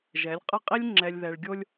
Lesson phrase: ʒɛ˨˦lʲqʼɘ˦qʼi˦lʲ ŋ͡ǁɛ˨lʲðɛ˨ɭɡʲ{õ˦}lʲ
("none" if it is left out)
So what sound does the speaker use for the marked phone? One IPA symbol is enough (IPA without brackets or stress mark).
o˦